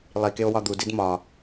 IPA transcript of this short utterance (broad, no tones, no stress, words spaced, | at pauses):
lˠikeo̯ wɒd̪udid mɒ